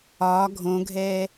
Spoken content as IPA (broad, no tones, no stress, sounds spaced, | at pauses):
ɒː ɡʱ õ ɡʱ ɛː